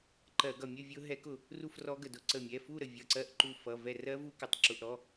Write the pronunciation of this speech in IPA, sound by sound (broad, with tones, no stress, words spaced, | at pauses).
ǃɜ˧˩˧ ɡʌ˧˩mʲə˥˧ vʲʊ˦˥ ɦɛ˦˥kʊ˧˩ | ru˥˧frɔ˦˥ɡə˧˩dʊ˧˩ ǀə˧˩mʲɛ˩˧˩fu˥˧ ɾə˧˩vʲʌ˩˧˩ǀɜ˧˥˧ʔǃu˧˩ fʌ˩˧˩ vɛ˧˩ rɜ˦˥vu˦˥kə˩˧˩tˤ ǁʊ˩˧˩ʔ ɾɔ˩˧˩